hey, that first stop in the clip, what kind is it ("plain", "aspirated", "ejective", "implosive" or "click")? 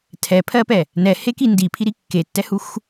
aspirated